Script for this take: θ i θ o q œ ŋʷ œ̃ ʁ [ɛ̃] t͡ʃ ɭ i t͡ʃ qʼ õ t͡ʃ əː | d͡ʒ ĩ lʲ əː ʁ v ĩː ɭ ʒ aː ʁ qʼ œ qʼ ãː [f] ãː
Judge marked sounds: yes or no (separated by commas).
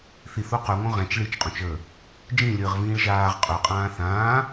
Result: yes, no